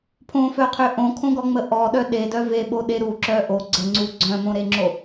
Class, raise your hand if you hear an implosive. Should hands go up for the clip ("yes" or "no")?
yes